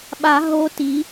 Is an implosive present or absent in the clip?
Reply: present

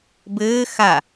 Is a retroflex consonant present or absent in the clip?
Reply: absent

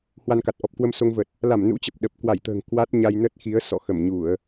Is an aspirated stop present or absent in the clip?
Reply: absent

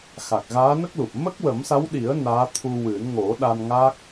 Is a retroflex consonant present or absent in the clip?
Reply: absent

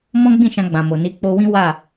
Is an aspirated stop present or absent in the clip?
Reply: absent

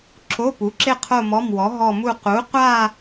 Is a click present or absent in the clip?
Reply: present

